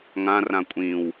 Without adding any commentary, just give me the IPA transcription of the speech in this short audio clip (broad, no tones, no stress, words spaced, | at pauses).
ŋãrã kʷʼĩw